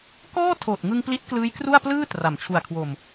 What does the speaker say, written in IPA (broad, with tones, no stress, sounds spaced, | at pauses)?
k ɔː˥˩ tʰ oː˨˩ t̚ ŋ ɯ˧ ŋ p l i˦˥ t̚ k l ɯː˦˥ j k r u˥˩ a̯ p l ɯː˥˩ t r a˩˦ m t͡ɕʰ u˨˩ a̯ kʰ w o˨˩ m